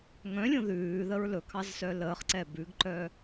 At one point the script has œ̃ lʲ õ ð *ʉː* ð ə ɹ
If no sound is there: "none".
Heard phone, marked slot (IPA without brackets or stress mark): ʉː